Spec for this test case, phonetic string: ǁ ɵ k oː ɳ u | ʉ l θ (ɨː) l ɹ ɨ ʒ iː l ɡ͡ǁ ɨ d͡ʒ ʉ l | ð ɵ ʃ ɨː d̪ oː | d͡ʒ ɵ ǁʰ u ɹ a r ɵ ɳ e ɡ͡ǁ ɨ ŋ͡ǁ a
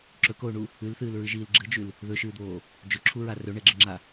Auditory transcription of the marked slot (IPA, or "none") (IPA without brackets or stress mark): ɨː